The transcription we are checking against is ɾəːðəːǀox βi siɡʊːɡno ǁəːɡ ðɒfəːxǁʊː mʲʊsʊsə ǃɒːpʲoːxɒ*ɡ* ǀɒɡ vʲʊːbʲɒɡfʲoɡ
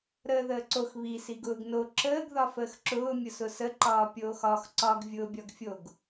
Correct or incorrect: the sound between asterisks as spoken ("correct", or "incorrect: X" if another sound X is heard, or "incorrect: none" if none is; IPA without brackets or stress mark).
incorrect: x